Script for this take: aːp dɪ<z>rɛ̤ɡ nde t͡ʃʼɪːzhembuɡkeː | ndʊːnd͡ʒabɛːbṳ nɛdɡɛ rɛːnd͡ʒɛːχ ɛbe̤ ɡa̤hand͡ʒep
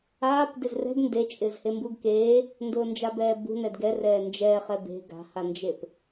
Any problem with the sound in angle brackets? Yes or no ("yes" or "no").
no